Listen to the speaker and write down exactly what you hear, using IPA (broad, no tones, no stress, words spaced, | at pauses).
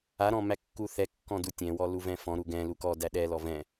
aɾɔ̃ mækːuθɛ kːɔ̃dutʲɛ̃wɔ luvɛ̃fɔ̃ ɾuɡɛ̃ lukɔdæ ɗɛlɔ vɛ̃